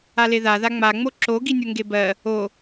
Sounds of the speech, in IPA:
a l e ð a ð a ŋ͡m a ŋ͡m o ǁ o ɡ i nʲ o ŋ ɡ e b ɜ | o

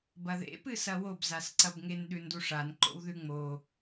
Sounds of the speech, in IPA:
b ɐ ð ḛ p ɨ s ɐ w o b z a s ǀ ɐ b ŋ e n ɗ ʉ n d u ʂ a n ǃ o̰ w ð ʉ ŋ͡m o

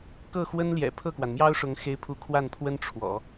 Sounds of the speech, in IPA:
k ɤ˥˩ x w ə˥ n l j ɛ̰˨˩ pʰ ɤ˥˩ k w a˩ n m j ɑ˥ ʊ̯ ʂ ʊ˧˥ ŋ x e˥ ɪ̯ pʰ u˥ kʰ w a˥˩ n t̪ʰ w ə˥ n ʈ͡ʂʰ w ɔ̰˨˩˦

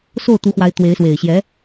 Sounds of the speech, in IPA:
s o˥˩ ʊ̯ t̪ u˧˥ x w a˧˥ ɪ̯ t̪ w e˧˥ ɪ̯ s w e˨˩ ɪ̯ ɕ j ɛ˧˥

